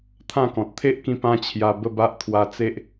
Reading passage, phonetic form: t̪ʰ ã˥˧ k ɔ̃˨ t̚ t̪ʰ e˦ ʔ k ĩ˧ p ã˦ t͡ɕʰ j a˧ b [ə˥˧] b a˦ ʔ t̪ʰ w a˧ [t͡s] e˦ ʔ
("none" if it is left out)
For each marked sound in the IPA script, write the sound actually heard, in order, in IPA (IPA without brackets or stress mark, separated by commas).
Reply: ə˥˧, t͡s